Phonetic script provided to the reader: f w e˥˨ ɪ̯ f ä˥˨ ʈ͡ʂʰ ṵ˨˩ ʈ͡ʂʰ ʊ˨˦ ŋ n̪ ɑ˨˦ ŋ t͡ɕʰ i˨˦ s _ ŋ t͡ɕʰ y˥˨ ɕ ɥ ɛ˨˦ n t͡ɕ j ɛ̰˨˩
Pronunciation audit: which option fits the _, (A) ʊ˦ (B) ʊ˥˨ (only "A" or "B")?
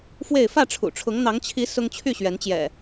A